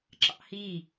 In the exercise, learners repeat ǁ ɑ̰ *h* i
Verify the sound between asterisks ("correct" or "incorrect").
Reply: correct